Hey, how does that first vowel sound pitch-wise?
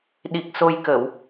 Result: low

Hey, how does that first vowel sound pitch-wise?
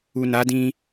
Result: low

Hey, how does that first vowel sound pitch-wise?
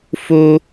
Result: high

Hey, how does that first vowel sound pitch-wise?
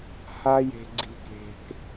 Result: high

